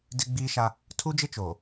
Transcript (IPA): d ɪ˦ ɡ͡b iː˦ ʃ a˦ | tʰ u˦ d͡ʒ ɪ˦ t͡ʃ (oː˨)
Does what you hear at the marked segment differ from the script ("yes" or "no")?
no